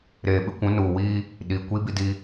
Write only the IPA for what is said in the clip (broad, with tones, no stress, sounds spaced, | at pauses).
ɾ eː˨ ɓ ɪ˦ kʷ ũ˨˦ n uː˨ w iː˦ | ɗ iː˨ kʷ i˦ b i˦ d i˦